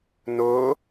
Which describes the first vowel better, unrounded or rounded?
rounded